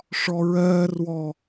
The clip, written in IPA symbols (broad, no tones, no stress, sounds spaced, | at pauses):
ʂ ɔ ɹ ɜː r w ɔ